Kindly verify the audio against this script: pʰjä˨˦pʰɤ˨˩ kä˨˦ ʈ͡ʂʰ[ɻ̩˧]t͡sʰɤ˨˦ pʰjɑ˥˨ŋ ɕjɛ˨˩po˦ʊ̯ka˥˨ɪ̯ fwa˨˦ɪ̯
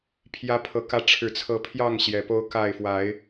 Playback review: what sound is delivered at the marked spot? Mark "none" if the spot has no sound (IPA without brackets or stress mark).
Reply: ɻ̩˨˩